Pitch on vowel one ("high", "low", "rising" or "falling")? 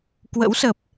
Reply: rising